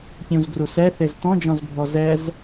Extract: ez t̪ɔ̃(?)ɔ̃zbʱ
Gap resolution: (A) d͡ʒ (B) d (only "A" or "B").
A